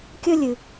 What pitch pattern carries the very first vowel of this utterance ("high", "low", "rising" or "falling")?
high